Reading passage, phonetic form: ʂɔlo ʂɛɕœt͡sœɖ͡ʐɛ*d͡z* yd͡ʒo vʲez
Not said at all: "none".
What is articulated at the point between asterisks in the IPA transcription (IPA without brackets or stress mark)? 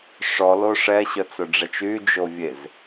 t͡ʃ